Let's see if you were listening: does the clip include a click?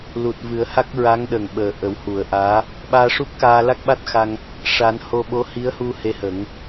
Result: no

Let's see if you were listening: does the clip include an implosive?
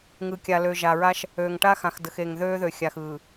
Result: no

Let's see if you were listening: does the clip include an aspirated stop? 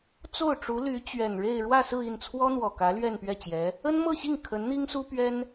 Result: yes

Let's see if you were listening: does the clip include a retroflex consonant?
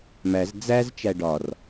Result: yes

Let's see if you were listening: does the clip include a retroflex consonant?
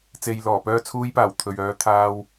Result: no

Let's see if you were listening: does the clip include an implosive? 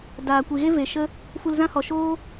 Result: no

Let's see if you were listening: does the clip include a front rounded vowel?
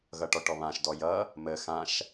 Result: no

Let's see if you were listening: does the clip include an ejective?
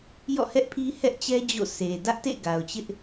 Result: no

